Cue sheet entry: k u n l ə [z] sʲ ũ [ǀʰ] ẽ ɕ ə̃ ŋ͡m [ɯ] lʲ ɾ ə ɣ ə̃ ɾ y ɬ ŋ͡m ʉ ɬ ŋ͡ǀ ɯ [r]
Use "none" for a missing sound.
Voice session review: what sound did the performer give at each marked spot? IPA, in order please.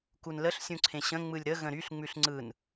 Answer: ɬ, ǀʰ, ɯ, n

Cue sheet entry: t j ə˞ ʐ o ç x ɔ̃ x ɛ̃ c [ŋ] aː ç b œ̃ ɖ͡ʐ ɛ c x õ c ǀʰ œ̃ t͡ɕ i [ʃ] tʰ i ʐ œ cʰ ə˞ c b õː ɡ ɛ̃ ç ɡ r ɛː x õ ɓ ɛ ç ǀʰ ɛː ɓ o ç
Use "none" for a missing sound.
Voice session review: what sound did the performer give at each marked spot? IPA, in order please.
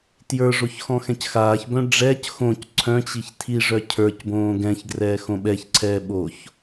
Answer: x, ç

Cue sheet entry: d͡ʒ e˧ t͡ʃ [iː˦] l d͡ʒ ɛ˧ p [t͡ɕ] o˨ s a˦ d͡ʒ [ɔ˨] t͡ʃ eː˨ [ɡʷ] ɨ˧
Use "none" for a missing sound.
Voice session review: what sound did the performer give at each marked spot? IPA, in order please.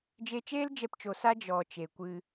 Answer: eː˦, t͡ʃ, ɔ˨, kʷ

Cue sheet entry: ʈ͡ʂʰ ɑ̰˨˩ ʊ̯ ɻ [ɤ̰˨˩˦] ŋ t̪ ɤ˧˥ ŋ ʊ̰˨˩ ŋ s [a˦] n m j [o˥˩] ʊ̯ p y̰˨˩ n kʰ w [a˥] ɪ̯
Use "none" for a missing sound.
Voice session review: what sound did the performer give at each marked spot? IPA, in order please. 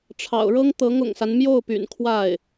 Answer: ɤ˥, a˦, o˥˩, a˥˩

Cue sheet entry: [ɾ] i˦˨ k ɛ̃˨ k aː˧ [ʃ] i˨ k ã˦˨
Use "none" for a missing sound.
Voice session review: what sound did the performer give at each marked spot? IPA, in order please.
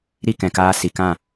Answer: ɾ, s

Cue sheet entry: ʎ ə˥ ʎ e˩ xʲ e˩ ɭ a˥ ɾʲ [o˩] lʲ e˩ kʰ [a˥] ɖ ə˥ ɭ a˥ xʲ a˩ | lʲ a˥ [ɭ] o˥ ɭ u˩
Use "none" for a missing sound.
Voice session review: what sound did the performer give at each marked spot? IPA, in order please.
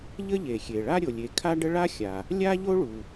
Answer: o˩, a˥, ʎ

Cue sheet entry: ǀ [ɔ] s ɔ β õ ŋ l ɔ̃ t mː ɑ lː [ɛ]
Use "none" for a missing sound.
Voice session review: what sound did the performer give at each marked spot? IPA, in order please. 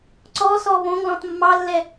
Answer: ɔ, ɛ

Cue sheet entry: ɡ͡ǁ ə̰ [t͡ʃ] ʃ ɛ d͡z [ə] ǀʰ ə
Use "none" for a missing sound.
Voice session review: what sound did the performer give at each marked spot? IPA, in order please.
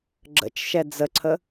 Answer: t͡ʃ, ə

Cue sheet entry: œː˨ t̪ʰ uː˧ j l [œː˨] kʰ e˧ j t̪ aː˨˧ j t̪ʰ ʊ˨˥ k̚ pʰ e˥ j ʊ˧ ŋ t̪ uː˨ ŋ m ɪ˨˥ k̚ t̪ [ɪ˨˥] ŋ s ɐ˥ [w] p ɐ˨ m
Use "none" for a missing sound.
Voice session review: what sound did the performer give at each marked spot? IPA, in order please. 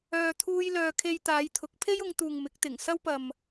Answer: œː˨, ɪ˨˩, w

